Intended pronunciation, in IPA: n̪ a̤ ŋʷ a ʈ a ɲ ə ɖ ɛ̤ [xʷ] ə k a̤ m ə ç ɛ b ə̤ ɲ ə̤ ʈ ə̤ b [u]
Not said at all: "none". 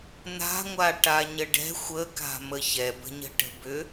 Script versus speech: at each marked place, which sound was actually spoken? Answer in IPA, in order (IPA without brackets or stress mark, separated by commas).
xʷ, ʏ